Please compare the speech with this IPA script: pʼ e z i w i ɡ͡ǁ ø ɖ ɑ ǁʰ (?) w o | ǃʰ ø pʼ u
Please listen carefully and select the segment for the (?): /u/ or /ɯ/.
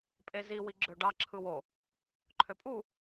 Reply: ɯ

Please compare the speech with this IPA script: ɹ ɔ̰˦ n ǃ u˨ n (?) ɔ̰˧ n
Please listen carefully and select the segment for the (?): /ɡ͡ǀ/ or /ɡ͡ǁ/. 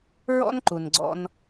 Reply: ɡ͡ǀ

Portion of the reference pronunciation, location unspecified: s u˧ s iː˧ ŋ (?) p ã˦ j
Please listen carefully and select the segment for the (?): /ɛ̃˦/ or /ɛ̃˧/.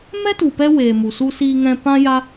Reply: ɛ̃˧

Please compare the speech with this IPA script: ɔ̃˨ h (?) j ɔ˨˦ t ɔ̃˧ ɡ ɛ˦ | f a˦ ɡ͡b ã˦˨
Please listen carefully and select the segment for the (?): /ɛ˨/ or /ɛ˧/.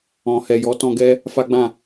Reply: ɛ˨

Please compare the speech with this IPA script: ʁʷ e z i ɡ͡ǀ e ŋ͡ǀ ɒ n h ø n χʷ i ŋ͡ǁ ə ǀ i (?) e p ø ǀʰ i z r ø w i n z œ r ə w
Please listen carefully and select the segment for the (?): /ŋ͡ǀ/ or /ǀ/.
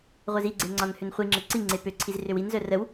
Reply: ŋ͡ǀ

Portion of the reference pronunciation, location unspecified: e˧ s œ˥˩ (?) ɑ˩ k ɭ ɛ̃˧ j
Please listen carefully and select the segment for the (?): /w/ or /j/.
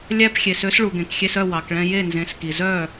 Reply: w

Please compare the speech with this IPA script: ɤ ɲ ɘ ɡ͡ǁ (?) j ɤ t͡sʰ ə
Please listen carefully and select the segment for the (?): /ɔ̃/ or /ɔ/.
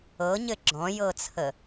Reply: ɔ̃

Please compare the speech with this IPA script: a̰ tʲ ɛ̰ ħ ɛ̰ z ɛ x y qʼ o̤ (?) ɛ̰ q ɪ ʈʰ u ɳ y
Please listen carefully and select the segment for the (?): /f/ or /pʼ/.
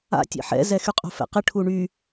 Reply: f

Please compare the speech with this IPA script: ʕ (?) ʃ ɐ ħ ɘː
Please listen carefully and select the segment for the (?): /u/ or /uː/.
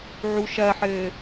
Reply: u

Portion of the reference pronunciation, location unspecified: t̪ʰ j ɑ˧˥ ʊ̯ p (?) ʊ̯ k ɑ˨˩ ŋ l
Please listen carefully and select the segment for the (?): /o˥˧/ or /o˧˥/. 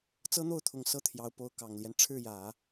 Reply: o˧˥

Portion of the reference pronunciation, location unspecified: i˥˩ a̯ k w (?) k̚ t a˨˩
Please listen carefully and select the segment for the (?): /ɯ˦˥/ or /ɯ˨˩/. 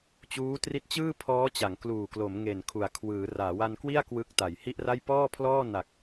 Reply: ɯ˦˥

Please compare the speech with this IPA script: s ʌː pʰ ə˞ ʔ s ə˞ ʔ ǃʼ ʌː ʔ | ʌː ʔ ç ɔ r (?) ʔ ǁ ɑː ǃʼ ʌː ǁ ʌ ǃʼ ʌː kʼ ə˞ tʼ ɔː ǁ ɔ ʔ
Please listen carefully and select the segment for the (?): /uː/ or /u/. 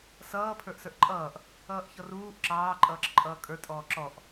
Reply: uː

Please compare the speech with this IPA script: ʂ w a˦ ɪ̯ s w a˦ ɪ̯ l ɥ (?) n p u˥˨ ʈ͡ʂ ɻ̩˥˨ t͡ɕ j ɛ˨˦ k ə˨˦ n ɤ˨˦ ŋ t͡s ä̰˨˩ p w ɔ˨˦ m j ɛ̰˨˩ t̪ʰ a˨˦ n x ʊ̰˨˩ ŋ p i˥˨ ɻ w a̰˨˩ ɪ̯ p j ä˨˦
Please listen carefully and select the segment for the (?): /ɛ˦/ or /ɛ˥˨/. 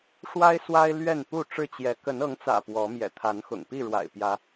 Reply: ɛ˥˨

